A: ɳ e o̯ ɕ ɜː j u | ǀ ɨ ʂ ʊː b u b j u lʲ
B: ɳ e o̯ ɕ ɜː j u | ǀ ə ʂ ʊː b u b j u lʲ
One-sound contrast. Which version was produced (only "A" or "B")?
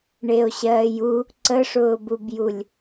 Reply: B